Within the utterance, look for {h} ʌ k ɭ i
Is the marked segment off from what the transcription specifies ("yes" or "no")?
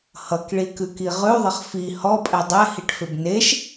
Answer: no